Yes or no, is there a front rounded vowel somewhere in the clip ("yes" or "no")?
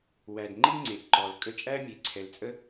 no